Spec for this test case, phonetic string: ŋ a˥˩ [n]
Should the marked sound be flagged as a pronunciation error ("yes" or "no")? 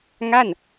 no